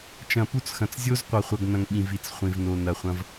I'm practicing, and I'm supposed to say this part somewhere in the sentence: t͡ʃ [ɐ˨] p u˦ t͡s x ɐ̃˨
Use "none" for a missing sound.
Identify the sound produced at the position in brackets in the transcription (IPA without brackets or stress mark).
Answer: ɐ̃˨